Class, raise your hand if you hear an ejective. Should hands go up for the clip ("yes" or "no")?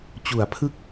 no